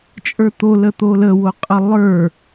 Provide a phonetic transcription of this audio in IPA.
t͡ʃʼ ə˞ t̪ o l ə t̪ o l ə w o qʼ ə lˠ ə˞

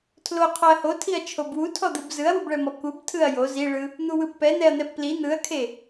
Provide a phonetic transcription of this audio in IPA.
tʰ l o qʰ ɔ ɐ̯ h o tʰ i ɐ̯ t͡ʃʰ o b w u tʰ ɔ d̪ ɯ b z ɯ ɐ̯ w u b ɭ ɛ m ɔ k u b tʰ ɯ ɐ̯ j o z i ɭ ɯ | n̪ u w ɯ b p ɛ n̪ ɛ ɐ̯ n̪ ɛ b p l i n̪ ɯ ɐ̯ kʰ e

